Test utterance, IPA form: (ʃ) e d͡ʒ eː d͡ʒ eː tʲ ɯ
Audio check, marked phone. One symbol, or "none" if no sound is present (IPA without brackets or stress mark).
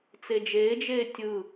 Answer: t͡s